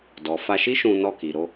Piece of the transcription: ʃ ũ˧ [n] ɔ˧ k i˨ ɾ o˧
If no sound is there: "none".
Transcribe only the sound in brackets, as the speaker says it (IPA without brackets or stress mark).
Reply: n